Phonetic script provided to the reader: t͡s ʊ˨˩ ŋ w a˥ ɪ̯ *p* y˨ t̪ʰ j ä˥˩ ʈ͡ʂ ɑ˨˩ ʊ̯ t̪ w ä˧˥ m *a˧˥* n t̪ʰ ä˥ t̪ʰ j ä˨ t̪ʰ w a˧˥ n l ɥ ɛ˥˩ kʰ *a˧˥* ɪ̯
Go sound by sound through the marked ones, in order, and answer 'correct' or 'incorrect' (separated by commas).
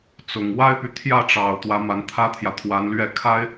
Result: correct, correct, incorrect